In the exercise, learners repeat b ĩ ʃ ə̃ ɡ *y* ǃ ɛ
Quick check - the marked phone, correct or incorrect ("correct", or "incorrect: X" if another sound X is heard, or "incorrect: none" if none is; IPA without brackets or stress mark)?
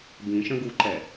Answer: incorrect: u